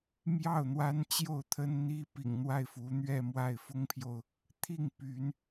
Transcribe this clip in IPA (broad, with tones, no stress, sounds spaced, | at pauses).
m j ɑ˥˩ ʊ̯ n̪ w a˥ n t͡ɕ j o˥˩ ʊ̯ t̪ʰ ə˥ n n̪ i˧˥ p ḭ˨˩ ŋ n̪ w a˥˩ ɪ̯ f u˧˥ n̪ ɥ ɛ˥˧ m w a˥˩ ɪ̯ f ʊ˥ ŋ pʰ j o˨ ʊ̯ | t̪ʰ i˥˩ ŋ p y˧˥ n